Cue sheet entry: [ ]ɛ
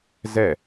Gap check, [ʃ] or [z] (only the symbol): z